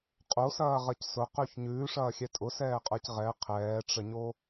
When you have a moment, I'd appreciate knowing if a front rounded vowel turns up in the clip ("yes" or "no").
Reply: no